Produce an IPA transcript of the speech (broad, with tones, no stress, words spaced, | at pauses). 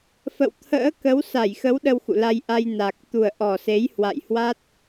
fə̰˧˨wt̪ʰə̰ː˧˥kə˨˦w sa˧˩jxə˨˦w ɗə˧wxṵ˧˨la˧jʔa˧j na˨˩k̚ t̪u˨˩ə̯ʔɔ˨˩se˨˦j hwa̰˧˨jhwa˦˥t̚